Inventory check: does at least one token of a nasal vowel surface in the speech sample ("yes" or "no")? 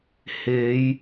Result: no